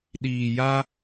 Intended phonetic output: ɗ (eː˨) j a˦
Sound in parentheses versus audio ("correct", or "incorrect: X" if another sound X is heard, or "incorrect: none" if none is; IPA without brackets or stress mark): incorrect: iː˨